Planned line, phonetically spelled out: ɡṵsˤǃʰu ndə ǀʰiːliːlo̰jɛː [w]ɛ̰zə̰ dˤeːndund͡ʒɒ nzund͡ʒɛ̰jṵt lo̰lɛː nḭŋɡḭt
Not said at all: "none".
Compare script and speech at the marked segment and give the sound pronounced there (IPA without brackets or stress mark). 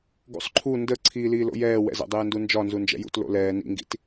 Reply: w